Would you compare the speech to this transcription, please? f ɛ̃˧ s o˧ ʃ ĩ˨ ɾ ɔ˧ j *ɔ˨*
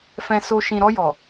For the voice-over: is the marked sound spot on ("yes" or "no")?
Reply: yes